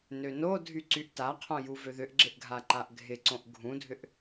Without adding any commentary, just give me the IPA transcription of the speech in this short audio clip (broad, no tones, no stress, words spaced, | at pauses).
nønodʱy ǀyʔtaqʰõ juvøðʏʔɡ͡ǁɪʔ ɡʱaǃaʔɡʱɪǀõʔ ɡʱũdʱʏʔ